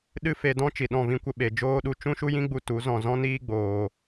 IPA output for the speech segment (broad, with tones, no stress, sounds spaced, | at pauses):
ɗ ɨ˦ f e˧ d ɔ̃˦ t͡ʃ i˨ ɗ ɔ̃˦˨ v ĩ˦ kʷ ə˦ ɓ e˨ d͡ʒ oː˦ ɗ u˧ t͡ʃ ũ˦ ʃ u˦ j ĩ˦ ɡ͡b u˧ t u˨˦ z ɔ̃˦˨ z ɔ̃˦ n iː˦ ɡ͡b oː˨